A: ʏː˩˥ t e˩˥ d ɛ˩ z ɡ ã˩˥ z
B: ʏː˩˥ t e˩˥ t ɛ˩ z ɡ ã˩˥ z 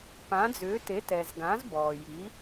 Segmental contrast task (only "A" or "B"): B